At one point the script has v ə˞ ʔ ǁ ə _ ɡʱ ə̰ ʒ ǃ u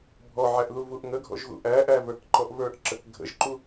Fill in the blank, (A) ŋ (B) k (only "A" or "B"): B